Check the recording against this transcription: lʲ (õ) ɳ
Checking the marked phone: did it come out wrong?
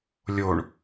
yes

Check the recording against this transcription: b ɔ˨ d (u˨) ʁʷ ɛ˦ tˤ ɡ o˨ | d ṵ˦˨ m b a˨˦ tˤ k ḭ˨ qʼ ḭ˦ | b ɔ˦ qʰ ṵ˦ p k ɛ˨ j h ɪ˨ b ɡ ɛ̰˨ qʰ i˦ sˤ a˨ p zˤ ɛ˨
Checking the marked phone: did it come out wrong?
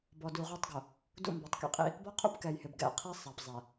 no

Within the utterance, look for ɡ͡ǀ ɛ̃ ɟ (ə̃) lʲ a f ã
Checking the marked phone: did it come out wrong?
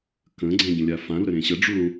no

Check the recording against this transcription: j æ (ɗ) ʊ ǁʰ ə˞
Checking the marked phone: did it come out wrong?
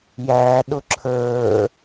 no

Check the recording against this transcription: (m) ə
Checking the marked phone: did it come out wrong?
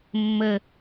yes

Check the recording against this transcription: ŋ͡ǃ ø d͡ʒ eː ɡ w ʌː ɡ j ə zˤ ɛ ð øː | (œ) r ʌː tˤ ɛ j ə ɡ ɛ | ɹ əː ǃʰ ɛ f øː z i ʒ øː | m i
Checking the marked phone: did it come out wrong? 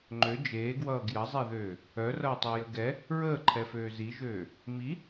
no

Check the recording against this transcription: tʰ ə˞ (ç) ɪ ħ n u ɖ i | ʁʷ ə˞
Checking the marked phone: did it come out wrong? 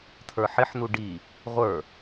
yes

